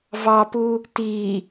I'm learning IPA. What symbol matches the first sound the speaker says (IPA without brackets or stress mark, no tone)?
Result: v